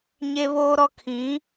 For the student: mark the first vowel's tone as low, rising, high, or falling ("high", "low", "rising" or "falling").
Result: high